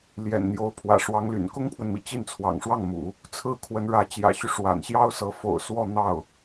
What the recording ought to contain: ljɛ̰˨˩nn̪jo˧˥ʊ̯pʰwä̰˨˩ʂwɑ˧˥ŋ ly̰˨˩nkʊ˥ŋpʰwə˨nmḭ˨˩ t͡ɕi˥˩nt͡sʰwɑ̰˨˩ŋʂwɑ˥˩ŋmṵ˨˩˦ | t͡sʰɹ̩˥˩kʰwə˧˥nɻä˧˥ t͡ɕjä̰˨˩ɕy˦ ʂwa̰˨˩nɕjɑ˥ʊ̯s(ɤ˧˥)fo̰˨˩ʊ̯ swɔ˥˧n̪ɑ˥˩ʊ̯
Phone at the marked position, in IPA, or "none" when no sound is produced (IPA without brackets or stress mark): ɤ˧˥